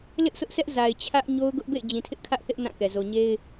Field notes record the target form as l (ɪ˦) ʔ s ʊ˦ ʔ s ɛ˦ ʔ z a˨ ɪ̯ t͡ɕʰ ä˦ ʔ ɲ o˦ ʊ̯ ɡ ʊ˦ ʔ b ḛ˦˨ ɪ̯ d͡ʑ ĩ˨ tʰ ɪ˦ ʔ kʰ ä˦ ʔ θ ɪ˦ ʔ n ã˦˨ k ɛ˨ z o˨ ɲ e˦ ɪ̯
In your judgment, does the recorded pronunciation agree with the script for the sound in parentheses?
yes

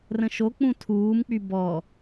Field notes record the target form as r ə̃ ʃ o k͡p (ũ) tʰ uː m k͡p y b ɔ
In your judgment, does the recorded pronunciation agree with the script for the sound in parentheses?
yes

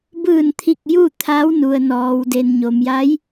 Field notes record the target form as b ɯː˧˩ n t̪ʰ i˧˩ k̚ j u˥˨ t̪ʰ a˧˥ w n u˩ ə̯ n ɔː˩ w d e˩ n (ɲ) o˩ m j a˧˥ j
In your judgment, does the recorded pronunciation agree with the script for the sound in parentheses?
yes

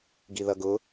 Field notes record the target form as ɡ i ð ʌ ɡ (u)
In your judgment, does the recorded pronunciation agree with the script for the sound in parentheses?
no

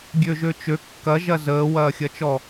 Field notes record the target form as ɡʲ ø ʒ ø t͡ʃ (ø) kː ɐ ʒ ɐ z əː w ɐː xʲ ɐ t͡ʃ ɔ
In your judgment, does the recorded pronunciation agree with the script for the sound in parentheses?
yes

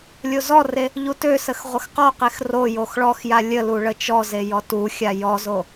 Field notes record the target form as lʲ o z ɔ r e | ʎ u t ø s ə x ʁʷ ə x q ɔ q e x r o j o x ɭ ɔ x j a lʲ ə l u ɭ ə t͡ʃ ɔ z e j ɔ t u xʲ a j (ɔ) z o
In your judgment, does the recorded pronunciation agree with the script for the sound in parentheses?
yes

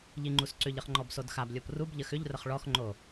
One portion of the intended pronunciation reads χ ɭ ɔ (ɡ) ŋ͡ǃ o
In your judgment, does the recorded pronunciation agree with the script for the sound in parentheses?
no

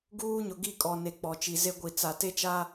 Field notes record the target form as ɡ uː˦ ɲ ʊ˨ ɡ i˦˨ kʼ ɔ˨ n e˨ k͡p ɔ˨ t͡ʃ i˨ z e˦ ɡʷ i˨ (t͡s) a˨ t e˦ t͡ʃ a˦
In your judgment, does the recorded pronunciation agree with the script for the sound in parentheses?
yes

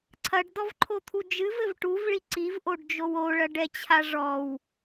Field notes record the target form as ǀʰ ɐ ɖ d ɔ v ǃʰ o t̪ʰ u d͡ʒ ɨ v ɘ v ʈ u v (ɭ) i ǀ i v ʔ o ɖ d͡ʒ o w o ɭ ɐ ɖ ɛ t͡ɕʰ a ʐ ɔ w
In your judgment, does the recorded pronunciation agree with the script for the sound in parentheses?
yes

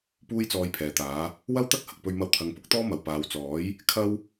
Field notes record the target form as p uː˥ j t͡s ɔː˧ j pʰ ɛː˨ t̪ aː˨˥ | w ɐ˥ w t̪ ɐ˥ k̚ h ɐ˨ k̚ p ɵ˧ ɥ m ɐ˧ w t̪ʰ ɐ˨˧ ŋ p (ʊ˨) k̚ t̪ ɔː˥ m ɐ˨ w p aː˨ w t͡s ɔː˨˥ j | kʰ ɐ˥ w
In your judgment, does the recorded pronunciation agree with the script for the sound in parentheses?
no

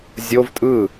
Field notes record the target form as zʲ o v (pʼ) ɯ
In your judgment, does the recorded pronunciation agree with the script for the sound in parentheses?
no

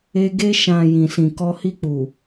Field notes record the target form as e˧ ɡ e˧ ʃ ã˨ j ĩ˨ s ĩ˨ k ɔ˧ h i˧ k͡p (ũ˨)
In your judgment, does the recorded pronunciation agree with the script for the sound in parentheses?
no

